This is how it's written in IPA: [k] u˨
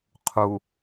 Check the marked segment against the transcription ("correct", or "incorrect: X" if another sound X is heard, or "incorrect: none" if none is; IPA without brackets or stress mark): incorrect: qʰ